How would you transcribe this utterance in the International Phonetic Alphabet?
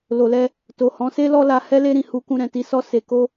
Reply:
l o˨ l ɛ˧ | t o˨ h ɔ̃˨˦ s e˦ l ɔ˦ l a˧ h ɛ˦ l e˦ ɾ ĩ˦˨ h u˧ k ũ˧ ɾ ɛ̃˨ t i˧ s ɔ˧ s e˨ k o˧

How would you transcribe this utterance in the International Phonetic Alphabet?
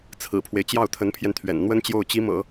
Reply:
t͡sʰ ɹ̩˨˩ pʰ w e˦ ɪ̯ t͡ɕ j ɑ˥˩ ʊ̯ t̪ʰ ə˧˥ n pʰ j ɛ˧ n t̪ʰ ɥ ɛ̰˨˩ n n̪ w ə˥ n t͡ɕ j o˥˩ ʊ̯ t͡ɕ i˧˥ m ɤ̰˨˩˦

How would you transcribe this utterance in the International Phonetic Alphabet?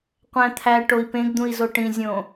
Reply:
qʷ æ̃ t̪ʰ æ ʈ o i̯ p ẽ ɡ d̪ ũ i̯ z o ʈ ĩ zʲ õ

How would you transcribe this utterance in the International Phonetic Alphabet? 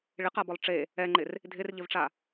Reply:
ɭ ɪ q a b ɔ lˠ ʈ͡ʂ e | ɛ ŋ͡ǃ ɪ r | dʱ ɪ r ʎ ɪ v ʈ͡ʂ a

